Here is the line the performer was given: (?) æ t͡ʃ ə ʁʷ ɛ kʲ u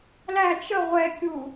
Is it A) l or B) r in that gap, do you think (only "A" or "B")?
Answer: A